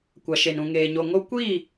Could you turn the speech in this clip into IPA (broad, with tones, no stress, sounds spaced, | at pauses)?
kʷ a˨ ʃ e˨ n ũ˨ ŋ eː˨ ɲ o˨ ŋ o˦ kʷ i˦˨